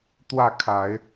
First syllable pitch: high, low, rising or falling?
falling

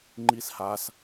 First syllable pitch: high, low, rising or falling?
high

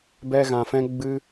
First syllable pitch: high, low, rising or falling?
high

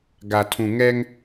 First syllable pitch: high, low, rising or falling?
low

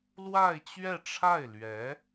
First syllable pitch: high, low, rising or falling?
falling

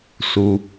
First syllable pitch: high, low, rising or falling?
low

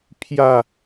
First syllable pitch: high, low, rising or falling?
falling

